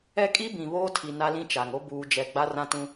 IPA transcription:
ɛ˦ kʼ i˦ b ĩ˨ β oː˦ tʰ i˨ n a˦ l ĩ˦ t͡ʃ a˨ ŋ o˦ b uː˨ d͡ʒ ɛ˨ ɡ͡b a˦ r ã˦ t ũ˦

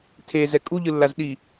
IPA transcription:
tʰ e z ɛ kʼ u ʎ ɯ lː a z ɗ i

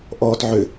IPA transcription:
ʔ ɔː t ʕ ʏ

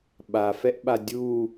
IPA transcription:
ɓ a f ɛ ʔ ɓ a dʲ u

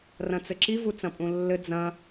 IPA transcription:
r ɐ̃ t͡s ɘ ǁ i v u t͡s ɐ̃ pʼ ũ lː ɘ d͡z ɐ̃

